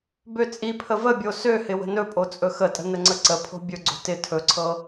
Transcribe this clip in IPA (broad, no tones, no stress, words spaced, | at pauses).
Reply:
bøt͡sʼipʰə vəbʲo søhɪ wə̤nɵpʼo t͡sʼɵxətʼə̤ nəŋ͡ǀəǀəpʰo̤ bʲɵɡ͡ǀo̤ tɪ tʰɵǀʰɤ